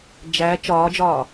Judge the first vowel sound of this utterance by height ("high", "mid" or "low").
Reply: low